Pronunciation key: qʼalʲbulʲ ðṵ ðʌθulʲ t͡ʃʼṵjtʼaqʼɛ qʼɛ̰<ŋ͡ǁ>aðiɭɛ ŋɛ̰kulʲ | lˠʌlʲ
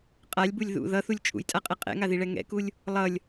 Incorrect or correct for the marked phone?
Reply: incorrect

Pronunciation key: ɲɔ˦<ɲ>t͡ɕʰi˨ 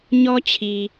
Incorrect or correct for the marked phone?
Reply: incorrect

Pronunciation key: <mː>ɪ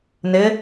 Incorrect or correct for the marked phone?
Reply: incorrect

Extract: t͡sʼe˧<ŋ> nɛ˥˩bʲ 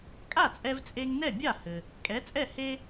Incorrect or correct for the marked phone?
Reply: correct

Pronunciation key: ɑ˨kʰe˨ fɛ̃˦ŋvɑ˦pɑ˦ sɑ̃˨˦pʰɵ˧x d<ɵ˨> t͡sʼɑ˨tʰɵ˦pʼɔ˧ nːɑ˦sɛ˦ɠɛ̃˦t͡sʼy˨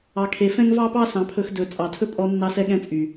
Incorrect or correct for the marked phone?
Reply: correct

